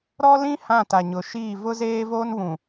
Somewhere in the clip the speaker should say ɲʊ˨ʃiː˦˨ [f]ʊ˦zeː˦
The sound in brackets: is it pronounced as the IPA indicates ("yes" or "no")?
no